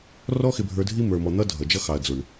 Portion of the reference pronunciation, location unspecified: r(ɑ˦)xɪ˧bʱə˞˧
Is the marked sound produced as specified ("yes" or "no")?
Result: no